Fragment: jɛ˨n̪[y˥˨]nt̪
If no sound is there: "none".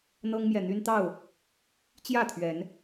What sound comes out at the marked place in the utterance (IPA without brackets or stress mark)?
y˦